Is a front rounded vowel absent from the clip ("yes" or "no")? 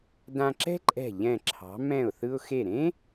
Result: yes